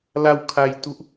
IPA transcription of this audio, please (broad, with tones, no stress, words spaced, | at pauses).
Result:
la˧w kʰa˧jtu˦˥ʔ